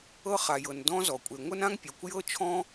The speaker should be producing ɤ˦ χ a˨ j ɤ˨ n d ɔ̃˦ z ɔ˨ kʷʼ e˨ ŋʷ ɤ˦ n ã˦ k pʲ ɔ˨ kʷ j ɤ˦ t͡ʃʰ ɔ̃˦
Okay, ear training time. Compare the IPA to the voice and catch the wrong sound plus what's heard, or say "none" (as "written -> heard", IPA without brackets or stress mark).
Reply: k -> ŋ